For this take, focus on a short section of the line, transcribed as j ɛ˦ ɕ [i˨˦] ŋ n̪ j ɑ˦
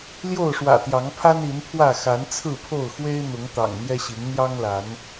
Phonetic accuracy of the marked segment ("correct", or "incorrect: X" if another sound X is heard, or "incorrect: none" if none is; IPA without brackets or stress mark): correct